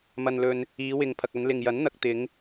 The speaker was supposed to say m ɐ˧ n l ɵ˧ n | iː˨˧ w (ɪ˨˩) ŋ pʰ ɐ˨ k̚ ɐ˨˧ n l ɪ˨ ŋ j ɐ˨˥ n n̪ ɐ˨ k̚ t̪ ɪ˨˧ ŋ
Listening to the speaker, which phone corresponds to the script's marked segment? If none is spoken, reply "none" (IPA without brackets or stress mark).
ɪ˨